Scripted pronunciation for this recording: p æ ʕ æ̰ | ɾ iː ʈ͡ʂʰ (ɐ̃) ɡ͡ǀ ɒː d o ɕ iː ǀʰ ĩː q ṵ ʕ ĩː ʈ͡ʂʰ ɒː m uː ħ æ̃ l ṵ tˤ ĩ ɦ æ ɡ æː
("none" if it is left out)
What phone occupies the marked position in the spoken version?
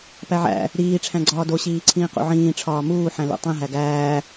æ̃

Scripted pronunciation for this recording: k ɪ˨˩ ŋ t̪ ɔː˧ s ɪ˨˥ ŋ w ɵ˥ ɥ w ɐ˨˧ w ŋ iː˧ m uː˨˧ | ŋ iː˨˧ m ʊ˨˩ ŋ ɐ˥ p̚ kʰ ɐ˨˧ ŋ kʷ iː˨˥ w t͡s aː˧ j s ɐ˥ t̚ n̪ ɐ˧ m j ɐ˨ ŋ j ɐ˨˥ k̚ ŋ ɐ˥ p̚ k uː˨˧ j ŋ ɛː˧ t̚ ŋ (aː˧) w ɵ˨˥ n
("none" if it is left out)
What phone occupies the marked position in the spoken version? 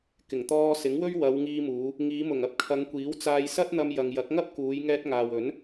aː˨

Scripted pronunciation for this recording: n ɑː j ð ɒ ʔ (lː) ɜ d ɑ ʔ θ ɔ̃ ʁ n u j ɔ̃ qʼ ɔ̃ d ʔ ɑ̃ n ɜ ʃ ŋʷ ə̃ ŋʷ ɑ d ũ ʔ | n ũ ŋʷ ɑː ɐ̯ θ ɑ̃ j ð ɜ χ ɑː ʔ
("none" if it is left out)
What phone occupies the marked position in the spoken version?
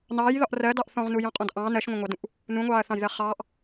r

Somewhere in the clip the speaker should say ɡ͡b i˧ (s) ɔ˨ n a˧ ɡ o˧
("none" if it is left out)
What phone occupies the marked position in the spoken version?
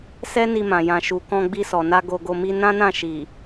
s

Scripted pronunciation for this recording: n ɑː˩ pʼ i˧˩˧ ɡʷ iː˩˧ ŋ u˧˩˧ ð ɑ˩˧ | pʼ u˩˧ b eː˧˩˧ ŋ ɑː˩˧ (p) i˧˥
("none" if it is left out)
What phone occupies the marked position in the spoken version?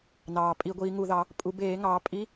pʼ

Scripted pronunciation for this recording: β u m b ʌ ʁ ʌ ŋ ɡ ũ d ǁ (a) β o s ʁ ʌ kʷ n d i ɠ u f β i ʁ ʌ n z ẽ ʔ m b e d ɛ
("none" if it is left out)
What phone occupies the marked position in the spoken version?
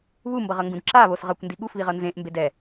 a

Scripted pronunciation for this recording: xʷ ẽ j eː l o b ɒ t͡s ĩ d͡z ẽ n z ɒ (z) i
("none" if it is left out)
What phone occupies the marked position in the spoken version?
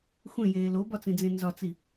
t͡s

